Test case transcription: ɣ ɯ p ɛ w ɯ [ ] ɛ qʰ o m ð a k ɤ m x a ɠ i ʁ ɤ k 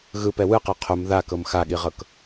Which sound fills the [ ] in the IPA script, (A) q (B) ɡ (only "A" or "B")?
A